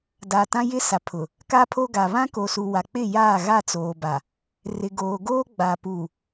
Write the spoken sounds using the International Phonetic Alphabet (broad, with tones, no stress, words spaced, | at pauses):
da˨ tã˦jɪ˦sa˨pʰʊ˨ | ka˦pʰo˦ɡa˨ βã˦ko˨ su˨wa˨ k͡pɪ˦˨jaː˦˨ ɣa˦˨t͡soː˨ba˨ | rɪ˨ɡoː˨ɡoː˦ ɡ͡ba˨pu˨